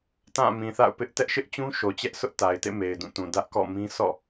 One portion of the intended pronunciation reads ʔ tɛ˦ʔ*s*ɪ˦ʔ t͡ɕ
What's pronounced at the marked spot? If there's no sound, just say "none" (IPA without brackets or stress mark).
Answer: ʃ